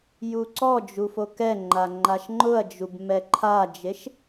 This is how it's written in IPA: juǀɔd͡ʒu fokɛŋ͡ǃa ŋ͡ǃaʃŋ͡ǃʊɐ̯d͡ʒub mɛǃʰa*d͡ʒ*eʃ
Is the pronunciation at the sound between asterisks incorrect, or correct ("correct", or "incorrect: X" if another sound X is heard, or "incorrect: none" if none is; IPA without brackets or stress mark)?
correct